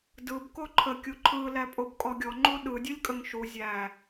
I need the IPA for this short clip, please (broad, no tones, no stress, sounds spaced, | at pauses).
d ɯ b k o ǃʰ ə kʲ u ǃʰ ɯ l æ pʼ o b kʼ ɔ ɡʲ ɔ ŋ͡ǃ u ɗ ɯ dʲ ɯ lʲ kʼ ə ŋ ʃ u zʲ æ